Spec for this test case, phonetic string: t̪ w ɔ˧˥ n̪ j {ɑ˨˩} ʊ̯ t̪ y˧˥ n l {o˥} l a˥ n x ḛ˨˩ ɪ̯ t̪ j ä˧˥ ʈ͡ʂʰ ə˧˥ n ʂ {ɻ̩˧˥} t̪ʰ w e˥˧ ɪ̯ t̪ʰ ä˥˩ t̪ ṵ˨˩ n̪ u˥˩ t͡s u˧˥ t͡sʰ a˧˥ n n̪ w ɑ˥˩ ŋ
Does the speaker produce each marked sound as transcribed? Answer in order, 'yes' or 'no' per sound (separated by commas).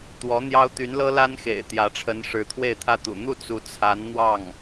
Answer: no, no, yes